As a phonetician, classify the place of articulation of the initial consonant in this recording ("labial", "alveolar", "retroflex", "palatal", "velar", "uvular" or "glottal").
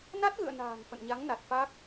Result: alveolar